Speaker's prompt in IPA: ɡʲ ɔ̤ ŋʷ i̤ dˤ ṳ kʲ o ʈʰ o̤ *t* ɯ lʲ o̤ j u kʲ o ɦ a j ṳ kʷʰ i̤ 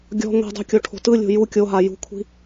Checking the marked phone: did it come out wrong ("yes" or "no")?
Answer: no